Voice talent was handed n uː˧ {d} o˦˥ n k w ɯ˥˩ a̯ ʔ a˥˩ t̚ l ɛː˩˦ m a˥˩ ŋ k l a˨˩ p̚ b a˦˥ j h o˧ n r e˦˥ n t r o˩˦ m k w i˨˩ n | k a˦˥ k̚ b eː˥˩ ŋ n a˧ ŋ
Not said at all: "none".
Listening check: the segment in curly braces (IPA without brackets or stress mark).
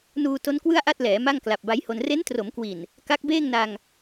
t